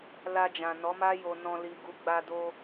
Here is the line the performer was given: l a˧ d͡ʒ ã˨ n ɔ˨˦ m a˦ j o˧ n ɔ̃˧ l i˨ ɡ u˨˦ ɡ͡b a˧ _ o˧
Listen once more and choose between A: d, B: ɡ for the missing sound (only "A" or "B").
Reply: A